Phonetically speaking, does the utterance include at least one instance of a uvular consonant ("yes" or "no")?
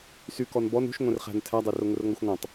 yes